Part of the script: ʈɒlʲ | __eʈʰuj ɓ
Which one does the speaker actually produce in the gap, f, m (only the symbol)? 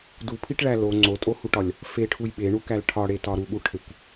f